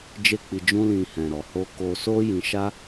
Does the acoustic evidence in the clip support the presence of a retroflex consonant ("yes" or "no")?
no